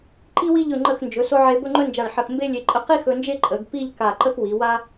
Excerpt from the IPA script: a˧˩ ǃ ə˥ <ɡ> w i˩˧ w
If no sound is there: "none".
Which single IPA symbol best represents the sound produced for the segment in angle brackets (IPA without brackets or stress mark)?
x